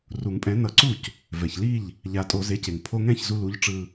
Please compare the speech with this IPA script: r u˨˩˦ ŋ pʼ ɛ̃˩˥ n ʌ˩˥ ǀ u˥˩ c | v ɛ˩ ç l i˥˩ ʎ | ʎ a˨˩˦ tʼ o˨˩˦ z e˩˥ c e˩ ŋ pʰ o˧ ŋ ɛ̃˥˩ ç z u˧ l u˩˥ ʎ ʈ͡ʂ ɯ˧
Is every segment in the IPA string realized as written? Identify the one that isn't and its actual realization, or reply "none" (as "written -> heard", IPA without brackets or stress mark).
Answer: none